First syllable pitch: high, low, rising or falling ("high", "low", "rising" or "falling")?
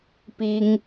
high